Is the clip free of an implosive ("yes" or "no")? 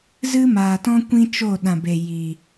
no